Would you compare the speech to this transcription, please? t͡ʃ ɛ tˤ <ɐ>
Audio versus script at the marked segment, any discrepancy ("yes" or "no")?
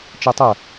no